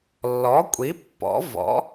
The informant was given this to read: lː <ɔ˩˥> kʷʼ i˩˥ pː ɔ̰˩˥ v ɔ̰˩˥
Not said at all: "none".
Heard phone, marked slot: ɔ˩˥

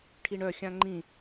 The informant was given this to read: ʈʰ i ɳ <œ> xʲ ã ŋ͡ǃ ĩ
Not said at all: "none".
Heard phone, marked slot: œ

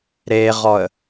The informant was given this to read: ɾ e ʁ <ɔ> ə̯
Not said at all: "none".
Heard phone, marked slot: ɔ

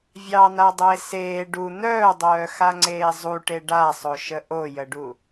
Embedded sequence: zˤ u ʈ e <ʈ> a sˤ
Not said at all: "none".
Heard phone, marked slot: ɖ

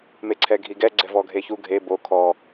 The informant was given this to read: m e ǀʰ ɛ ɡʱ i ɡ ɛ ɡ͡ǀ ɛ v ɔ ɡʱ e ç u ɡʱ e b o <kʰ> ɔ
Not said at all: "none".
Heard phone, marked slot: kʰ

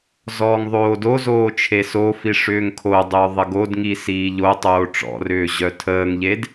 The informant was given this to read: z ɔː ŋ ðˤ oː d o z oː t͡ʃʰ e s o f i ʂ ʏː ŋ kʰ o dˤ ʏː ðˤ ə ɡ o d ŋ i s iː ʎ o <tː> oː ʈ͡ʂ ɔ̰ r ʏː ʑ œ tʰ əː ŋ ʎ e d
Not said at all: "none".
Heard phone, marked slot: tˤ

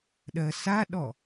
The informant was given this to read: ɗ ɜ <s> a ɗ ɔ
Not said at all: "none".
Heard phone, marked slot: s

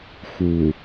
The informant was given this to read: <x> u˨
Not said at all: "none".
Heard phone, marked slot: x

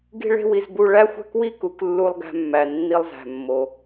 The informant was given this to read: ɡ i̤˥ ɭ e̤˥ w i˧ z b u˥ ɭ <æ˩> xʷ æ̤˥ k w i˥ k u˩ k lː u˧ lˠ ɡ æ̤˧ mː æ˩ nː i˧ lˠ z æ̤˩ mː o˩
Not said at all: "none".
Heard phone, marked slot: æ˥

